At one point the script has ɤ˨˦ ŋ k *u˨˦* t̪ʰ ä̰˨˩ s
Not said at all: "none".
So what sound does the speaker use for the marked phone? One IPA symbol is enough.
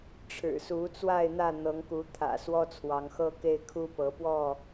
u˨˦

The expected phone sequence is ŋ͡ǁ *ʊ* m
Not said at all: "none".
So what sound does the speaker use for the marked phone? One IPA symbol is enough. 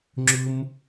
ʊ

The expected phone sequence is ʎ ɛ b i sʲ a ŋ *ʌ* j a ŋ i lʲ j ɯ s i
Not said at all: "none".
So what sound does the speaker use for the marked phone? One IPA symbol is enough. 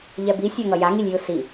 ʌ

